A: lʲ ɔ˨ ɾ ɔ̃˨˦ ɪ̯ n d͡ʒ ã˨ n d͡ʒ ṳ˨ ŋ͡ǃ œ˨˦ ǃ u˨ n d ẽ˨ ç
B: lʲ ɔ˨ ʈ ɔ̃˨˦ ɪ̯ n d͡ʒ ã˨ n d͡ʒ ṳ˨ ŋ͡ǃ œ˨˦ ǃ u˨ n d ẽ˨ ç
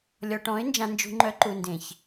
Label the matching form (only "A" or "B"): B